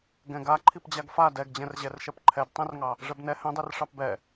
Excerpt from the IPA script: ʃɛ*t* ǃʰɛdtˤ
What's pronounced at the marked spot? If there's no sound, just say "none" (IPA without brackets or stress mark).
p